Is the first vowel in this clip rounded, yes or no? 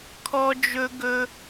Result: yes